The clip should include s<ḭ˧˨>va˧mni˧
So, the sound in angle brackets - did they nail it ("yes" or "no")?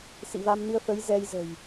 yes